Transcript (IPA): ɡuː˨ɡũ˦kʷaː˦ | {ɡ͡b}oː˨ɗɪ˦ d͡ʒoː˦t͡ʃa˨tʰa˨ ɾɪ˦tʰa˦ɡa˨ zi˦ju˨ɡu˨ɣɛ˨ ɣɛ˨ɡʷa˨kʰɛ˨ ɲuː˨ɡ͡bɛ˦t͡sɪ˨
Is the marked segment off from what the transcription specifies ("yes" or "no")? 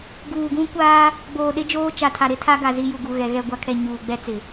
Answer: no